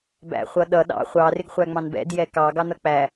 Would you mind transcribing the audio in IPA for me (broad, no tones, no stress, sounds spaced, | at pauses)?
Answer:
b æ̰ χʷ ʌ ɗ ʌ ɗ ɑ̰ χʷ ɑ r ɪ ɡ χʷ æ ŋ͡m ɑ̃ n b ɛ̰ d j ɛ k ɑ ɡ ɑ n ʌ k͡p æ